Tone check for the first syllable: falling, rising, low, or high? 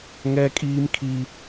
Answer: high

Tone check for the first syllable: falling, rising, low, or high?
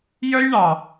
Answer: high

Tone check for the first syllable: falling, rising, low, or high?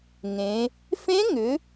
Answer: rising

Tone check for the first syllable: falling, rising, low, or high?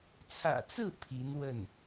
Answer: low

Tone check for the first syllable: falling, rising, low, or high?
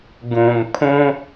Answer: low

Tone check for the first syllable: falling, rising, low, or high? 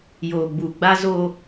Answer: low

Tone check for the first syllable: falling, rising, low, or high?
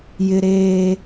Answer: high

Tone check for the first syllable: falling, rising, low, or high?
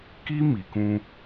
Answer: high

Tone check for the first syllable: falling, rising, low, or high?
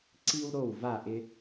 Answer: high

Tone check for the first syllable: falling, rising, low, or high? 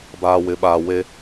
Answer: low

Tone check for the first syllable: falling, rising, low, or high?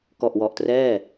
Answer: low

